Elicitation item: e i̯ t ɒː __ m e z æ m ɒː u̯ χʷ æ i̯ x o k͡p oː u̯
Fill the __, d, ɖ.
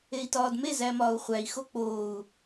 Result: d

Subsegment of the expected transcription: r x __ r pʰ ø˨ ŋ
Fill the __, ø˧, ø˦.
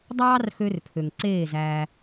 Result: ø˧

